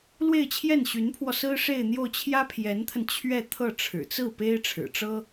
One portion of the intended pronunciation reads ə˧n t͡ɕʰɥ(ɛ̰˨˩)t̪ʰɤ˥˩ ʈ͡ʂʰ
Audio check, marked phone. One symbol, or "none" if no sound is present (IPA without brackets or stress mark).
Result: ɛ˥˧